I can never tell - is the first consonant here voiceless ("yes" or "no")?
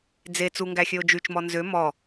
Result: no